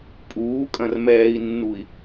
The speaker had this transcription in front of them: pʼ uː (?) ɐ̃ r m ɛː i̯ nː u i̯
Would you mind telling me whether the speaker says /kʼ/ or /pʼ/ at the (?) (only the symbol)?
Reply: kʼ